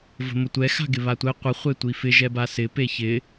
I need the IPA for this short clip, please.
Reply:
v ə̤ m ʊ tʷ ɛ x a̤ ɡ ɪ β a tʷ ɛ qʷ ə χʷ e tʷ i f ɪ ʒ ɛ b a s ɪ p e ç ɪ

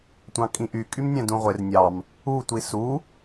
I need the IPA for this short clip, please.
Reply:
tʷ ɑ̃ kʼ ĩ ʔ y kʼ y m nʲ æ̃ d ũ ʁʷ e r nʲ ɑ m | u tʷ i s u

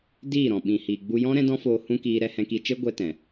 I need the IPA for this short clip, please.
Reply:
d iː˦˨ ɾ ɔ̃˨ ɓ ĩ˨ h iː˨ ɡ͡b u˧ j ɔ̃˦ ɾ ɛ̃˦ d ɔ̃˦ f oː˧ h ũ˦ k iː˧ ɾ ɛ˧ h ɛ̃˧ k i˧ t͡ʃ e˦ ɡʷ ɛ˦ t ɛ̃˨

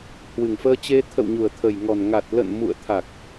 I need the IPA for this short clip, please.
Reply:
h w ɨ˨˩ ŋ f əː˧ t͡ɕ e˧ t̪ʰ ə̰˧˨ w ɲ u˨˩ ə̯ t̪ʰ ə˨˩ j ŋ ɔ˨˩ n ŋ a˨˩ t̚ l ə̰˧˨ n m ṵ˧˨ ə̯ t̪ʰ a˨˩ k̚

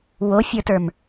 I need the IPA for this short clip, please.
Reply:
w o fʲ ə˞ t ə˞ m

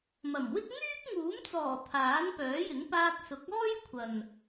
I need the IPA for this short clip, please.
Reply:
m ɐ˨˩ m w ɪ˥ k̚ ŋ yː˥ k̚ ŋ uː˨˥ m t͡s ɔː˨˩ t̪ʰ aː˨˥ n p œː˨˥ j ɪ˨˥ ŋ p aː˧ k̚ s ʊ˨˥ k̚ ɔː˥ j kʷʰ ɐ˨ n

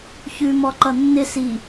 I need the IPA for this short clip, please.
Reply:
ç ʉ m ɔ ǃ ʌ nː ɪ s i

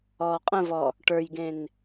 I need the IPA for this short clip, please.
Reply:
ɔː qʼ ə̃ v ɔ | ʈ ə˞ j ɡ ẽ n

